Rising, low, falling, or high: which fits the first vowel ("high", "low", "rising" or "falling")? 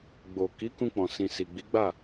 low